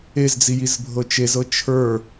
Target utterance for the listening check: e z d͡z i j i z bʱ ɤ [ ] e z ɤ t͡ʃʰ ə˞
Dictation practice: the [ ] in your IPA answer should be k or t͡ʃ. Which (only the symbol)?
t͡ʃ